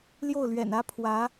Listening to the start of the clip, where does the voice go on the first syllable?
falling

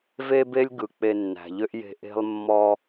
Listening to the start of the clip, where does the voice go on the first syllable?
high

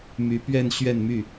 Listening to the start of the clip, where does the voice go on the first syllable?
rising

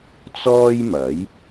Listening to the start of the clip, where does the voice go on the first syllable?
high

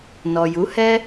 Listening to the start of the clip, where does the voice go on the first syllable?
low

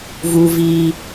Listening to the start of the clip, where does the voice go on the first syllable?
high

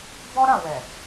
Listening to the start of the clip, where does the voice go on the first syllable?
high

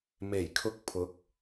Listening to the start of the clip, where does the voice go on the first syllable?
low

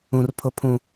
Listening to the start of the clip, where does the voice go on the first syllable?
low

